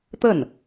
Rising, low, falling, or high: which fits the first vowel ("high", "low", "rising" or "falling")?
falling